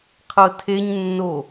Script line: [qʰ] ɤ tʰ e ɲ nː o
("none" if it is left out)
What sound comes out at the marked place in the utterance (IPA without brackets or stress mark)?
qʰ